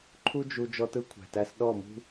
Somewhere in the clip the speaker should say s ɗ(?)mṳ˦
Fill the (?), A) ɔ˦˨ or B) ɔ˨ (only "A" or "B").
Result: A